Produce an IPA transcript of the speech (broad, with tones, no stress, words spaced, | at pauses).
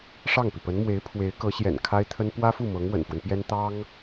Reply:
ʂɑ˥˩ŋpi˩pə˧˥nmwe˧˥ɪ̯ pʰwe˧˥ɪ̯kɤ˧˥ɕjɛ̰˨˩n kʰa˥ɪ̯t̪ʰə˥n pwä˥fu˥˩ mɤ˧˥ŋwə̰˨˩nfwə˦npjɛ˥n t̪ɑ˥ŋ